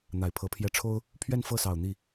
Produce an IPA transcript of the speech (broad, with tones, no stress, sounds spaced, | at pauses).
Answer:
n̪ a˨˩ ɪ̯ pʰ ɤ˧˥ pʰ j ɛ˥ ʈ͡ʂʰ o˥ ʊ̯ | pʰ ɥ ɛ˥˧ n f ɤ˥˩ s ɑ˨˩ ʊ̯ n̪ i˥˩